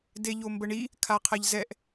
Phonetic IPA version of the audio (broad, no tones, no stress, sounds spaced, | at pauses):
d e ʎ o m b ə ɳ i | kʰ a qʰ ɛ ʎ z ɛ ʔ